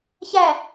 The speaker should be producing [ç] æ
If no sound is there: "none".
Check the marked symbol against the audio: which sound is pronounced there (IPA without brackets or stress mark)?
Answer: ç